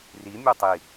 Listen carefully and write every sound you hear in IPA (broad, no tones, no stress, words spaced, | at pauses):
rimʲo tˤi